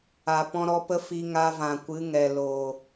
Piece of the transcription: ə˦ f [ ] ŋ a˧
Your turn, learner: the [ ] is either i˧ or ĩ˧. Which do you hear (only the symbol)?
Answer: i˧